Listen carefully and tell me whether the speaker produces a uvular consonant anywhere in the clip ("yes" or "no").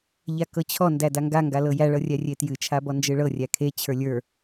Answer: no